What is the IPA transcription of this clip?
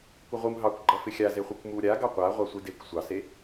kʷ ʌ ʁʷ ɯ m ɦ ɑ kʷ ɡ͡ǃ ʌ f ɪ xʲ a z e χʷ i kʷ m u ɾʲ a ɡ ɑ qʷ a ʁʷ ɑ sʷ i d e kʷ sʷ ɑ s e

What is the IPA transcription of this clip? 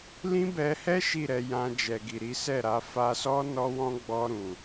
l ĩ˦ b ɛ˧ h ɛ˦ ʃ i˦˨ ɾ ɛ˧ j ã˧ d͡ʒ ɛ˨ ɡ i˨ ɾ i˨˦ s ɛ˦˨ ɾ a˨˦ f a˧ s ɔ˦ n ɔ˦ w ɔ̃˦ ɡ͡b ɔ˧ ɾ ũ˨

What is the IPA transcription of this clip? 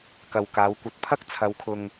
k ɐ˨ w k aː˨˧ w kʷ ɐ˧ t̚ pʰ ɐ˥ k̚ t͡sʰ ɐ˨˧ w kʰ ʊ˨ ŋ

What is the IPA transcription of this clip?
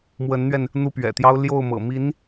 m w ə˧˥ n n̪ ɥ ɛ˧ n | n̪ u˥˩ p ɥ ɛ̰˨˩ t̪ j ɑ˥ ʊ̯ l j o˥˩ ʊ̯ m ɤ̰˨˩ m i˧˥ n

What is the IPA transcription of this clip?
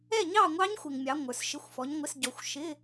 ɛ˥˨ ɲ ɑ˥˨ ŋʷ ɑ˦˥ ɲ xʷ ɪ˨ ŋ mʲ ɑ˨˥ ŋʷ ə˞˨ s ʃ ɪ˧˥˧ xʷ f ɔ˨˥ ɲ ŋʷ ɪ˧˥˧ s ɟ ɔ˨ xʷ ʃ ɪ˧˥˧

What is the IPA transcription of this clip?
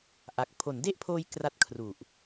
ʔ a˨˩ k̚ pʰ o˩˦ n d e˥˩ ʔ pʰ oː˧ j k r a˥˩ t̚ kʰ r u˨˩ ʔ

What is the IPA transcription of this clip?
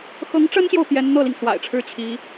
x ɤ˧˥ ŋ ʈ͡ʂ ə˥ n ɕ j o˨ ʊ̯ p j ɛ˧˥ n n̪ ɤ˥˩ l i˩ ŋ s w a̰˨˩ ɪ̯ ʈ͡ʂʰ ɻ̩˥ t͡ɕʰ i˧˥

